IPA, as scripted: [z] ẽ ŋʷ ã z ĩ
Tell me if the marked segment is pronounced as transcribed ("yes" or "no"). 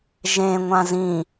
no